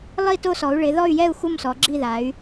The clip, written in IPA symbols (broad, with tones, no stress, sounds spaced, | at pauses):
lˠ i˦˨ t o˦˨ s ɔ˩˧ u̯ ɭ ɪ˩˧ ð ɔ˦˨ y̯ j ɛ˦˨ u̯ x u˦˨ m s ɔ˩˧ ɡ͡ǁ i˦˨ ð a˩˧ y̯